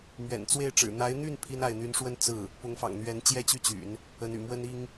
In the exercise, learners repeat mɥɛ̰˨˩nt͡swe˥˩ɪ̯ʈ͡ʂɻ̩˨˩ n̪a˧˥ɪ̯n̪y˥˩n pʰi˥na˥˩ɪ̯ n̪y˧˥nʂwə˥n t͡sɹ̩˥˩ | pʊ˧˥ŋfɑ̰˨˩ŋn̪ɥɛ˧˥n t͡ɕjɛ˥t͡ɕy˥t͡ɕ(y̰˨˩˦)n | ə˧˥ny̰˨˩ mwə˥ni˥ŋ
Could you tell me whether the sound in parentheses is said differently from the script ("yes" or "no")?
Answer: no